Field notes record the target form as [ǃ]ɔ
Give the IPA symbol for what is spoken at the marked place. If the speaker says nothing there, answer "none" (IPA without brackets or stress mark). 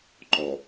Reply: ǃ